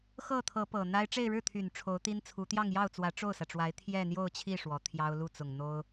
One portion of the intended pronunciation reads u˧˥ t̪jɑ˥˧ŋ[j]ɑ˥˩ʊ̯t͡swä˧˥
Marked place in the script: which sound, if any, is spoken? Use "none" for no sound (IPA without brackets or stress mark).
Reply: j